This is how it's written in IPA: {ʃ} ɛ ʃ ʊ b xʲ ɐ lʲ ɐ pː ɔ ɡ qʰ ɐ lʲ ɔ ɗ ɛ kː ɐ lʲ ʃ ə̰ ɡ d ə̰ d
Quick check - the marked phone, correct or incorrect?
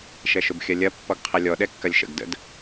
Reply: correct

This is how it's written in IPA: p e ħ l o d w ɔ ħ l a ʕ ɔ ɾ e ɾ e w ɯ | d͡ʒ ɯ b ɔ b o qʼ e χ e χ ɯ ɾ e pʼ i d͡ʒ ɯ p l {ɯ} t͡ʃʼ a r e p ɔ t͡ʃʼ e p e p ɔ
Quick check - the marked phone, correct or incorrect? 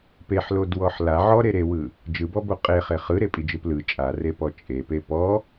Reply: correct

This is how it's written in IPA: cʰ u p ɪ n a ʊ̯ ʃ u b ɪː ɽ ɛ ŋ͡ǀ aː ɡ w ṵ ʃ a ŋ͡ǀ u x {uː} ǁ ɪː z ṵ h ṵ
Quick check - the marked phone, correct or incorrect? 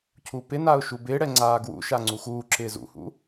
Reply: correct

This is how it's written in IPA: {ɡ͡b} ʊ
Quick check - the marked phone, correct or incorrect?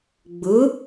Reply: correct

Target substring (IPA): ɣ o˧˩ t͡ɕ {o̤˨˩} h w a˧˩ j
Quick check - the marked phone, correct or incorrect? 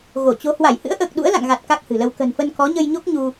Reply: incorrect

